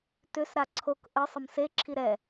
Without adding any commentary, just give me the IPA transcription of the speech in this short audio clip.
t ʏ s ɾ a ǀʰ o k ʔ ə sˤ ə m s e ǁʰ i ɾ ɛ

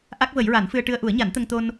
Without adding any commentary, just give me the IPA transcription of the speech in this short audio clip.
ʔ a˦˥ k̚ v ə˨˩˦ j ɹ a˨˩˦ n f ɨ˧ ə̯ ʈ ɨ˧ ə̯ ʔ u˨˩˦ ə̯ ɲ a˨˩˦ n t̪ ə˧ ŋ t̪ o˧ n

